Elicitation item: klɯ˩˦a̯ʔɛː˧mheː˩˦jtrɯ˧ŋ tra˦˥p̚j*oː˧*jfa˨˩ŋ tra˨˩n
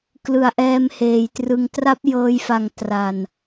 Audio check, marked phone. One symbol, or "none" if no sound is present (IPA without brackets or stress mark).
ɤː˧